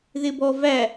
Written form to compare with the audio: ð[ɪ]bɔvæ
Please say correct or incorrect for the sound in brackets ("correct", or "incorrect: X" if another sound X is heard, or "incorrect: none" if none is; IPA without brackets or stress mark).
correct